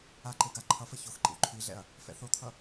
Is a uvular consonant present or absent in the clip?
absent